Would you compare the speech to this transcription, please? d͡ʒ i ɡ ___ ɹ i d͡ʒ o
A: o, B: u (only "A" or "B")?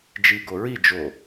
A